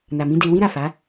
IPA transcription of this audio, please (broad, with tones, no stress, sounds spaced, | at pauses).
n a˨ m ĩ˨˦ d e˧ w ĩ˦ ɾ a˦˨ f a˨˦